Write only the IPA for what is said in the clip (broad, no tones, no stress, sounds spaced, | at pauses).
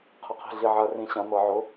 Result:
qʰ ɘ qʰ i̤ ɮ i ʕ ɐ r ĩ ɕ ɐ̃ n̪ ɤ ʕ ʊ